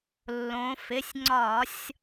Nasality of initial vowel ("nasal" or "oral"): nasal